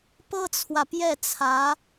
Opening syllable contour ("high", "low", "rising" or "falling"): high